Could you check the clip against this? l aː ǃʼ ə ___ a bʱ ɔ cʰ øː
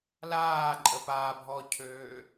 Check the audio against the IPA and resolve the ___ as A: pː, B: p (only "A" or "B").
B